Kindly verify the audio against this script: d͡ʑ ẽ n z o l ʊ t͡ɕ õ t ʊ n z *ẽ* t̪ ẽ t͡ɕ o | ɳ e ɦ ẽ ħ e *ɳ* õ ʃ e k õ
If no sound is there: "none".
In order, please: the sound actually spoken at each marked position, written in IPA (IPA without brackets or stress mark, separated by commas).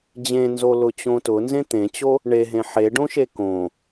ẽ, ɖ